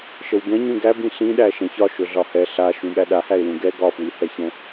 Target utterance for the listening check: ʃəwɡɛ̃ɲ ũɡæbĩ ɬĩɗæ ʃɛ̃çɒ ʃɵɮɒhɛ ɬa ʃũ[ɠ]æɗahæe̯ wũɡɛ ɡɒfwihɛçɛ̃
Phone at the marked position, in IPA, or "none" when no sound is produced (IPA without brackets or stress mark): ɠ